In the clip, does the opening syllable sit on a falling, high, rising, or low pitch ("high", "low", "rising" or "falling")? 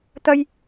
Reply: high